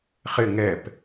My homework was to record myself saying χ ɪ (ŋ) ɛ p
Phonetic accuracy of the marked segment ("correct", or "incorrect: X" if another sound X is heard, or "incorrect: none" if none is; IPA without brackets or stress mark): correct